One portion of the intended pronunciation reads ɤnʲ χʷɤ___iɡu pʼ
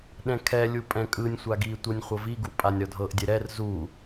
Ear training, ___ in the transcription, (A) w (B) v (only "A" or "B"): B